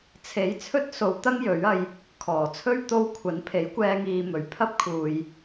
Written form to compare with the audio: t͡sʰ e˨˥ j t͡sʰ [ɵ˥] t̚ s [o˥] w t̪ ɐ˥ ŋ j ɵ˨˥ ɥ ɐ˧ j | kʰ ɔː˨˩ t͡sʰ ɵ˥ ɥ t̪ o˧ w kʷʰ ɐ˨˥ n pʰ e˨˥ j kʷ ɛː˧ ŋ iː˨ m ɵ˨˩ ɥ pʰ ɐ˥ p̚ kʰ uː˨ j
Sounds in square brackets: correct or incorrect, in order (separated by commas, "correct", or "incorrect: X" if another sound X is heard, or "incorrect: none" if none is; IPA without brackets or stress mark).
correct, incorrect: o˨˧